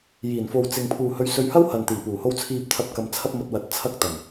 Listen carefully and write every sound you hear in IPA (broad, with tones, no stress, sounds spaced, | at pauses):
j iː˨˩ n f o˨ w t͡s ɪ˨ ŋ pʰ uː˨ h ɵ˧ ɥ s ɵ˧ ɥ h ɐ˥ w h ɐ˨ n t̪ iː˨˩ p uː˨˩ h o˧ w t͡sʰ iː˧ p̚ t̪ʰ ɐ˧ p̚ k ɐ˧ m t͡sʰ ɐ˥ p̚ m ɐ˧ t̚ w ɐ˨˥ t̚ t͡sʰ ɐ˧ k̚ t̪ ɐ˨˩ n